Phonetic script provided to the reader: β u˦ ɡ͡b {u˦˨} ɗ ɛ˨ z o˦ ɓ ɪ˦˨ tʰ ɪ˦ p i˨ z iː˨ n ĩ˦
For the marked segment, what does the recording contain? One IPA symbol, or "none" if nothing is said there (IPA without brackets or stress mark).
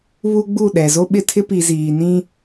u˦˨